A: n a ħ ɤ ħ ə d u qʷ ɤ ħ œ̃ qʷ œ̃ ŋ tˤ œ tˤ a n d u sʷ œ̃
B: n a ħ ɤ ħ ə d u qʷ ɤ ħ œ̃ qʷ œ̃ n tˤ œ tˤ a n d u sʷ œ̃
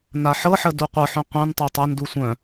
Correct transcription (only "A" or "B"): B